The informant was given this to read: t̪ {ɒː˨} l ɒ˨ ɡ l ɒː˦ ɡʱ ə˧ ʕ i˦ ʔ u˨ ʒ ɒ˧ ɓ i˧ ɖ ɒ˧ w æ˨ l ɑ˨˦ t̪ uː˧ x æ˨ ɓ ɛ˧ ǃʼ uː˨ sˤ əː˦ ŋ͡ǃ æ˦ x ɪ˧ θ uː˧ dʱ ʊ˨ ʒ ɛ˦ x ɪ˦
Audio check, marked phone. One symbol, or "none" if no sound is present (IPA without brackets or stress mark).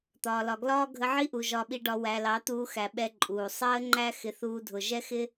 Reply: ɒː˨